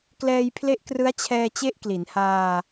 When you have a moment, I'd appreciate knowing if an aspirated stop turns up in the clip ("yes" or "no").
yes